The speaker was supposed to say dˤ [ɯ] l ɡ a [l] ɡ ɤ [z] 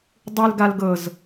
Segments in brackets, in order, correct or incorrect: correct, correct, correct

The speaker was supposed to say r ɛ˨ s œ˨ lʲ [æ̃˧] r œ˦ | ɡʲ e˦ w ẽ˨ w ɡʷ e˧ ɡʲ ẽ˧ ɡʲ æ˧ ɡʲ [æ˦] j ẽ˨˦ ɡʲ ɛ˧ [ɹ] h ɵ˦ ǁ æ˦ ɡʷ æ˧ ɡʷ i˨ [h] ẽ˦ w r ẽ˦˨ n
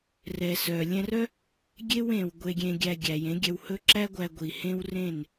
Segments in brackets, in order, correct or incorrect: incorrect: ɛ̃˧, incorrect: æ˨, incorrect: w, correct

